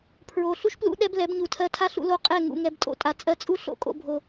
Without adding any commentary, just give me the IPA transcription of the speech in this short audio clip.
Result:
pʰ ɹ o˨ ɬ u˦ ʃ p l ṵ˦ ɗ ɛ˦ b l ɛ˨˦ b ɲ u˨ tʰ ɜ˧ tʰ a˦ ɬ ṵ˧ l o˧ qʼ ɛ˦˨ ŋ ṵ˨ ŋ ɛ˧ b tʼ o̰˦˨ tʼ a˨ t͡sʼ ɜ˧ t͡sʼ u˦ ɬ o̰˨ kʼ o̰˧ bʱ o˨

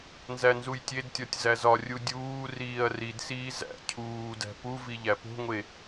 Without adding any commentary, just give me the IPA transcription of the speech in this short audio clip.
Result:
n z æ n z u j tʲ e d tʲ ɒ tʲ z æ z ɒ rʲ u dʲ uː r iː ɐ̯ r i d s iː z æ̰ cʰ uː d æ̤ p u v i ʎ æ p o̤ ŋʷ e

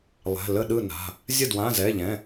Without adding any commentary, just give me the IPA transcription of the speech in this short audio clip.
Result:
lˠ ɛ̤˩˧˩ l ə˥˩ ɗ ɯ˥˩ n a̤˩˧˩ | zʲ ə˥˩ d w ã˩˧˩ z ɛ˩˧˩ ʎ ɛ̃˩˧˩

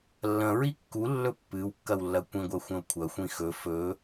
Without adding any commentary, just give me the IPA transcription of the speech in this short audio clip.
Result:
lː ɐ̃ ɹ i kː u lː ɵ pː ɨ w kː ɐ w lː ɐ kʷ ĩ ɡʷ ɐ xʷ ɐ̃ o̯ kʷʰ ɐ xʷ ĩ x ɵ f ɵ

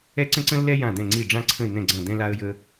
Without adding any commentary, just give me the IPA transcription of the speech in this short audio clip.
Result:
ɛ˥ ǀ ə̃˥ ǀ ə̃˥ lː ɛ˥ j ã˥˩ d̪ ɛ̃˥˩ ŋ͡ǀ i˥˩ ɖ͡ʐ ã˥ ǀʰ ə̃˥˩ ɪ̯ n̪ ɛ̃˥˩ ɡ͡ǀ ɐ̃˥˩ d̪ ɛ̃˥ l a˥ ə̯ j ə˥

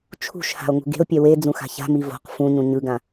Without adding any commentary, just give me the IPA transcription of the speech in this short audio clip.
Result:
t͡ʃʰ ṳ ʃ h a̤ o̯ ŋ ṳ ɡ e̤ o̯ pʲ ɛ w e d͡z ũ x a̤ ç a̤ m i v o̤ q f ũ ɲ ũ ɲ ɯ ɡ ã

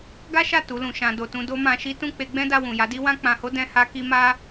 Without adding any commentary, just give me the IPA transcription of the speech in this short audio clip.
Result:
ɡ a˦ ʃ a˦˨ t u˨˦ l ũ˧ ʃ ã˧ d o˨ t ũ˧ d o˦ m ã˧ ʃ i˦ t ũ˦˨ k͡p e˧ ɡ͡b ɛ̃˦ d a˧ w ũ˨ j a˨˦ d i˦ w ã˦ k͡p ã˧ h o˦ d ɛ̃˦ h a˦ k i˦ m a˦

